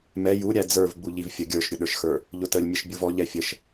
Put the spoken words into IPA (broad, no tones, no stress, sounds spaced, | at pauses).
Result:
m ɛ j u ɾʲ æ d͡z ə˞ v ɡ͡b u ʎ i v fʲ ə ɡʲ ə˞ ʃ ɾʲ ʊ ɗ ə˞ ʃ x ə˞ | ʎ ʊ t ə lʲ mʲ ə ʃ bʲ u v ɔ ʎ ɛ fʲ ə ʃ